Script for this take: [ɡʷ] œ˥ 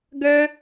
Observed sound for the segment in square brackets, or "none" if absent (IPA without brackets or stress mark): ɡ